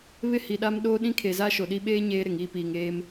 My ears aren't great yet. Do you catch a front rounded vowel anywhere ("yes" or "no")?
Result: no